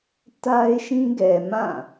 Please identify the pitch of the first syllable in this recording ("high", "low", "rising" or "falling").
high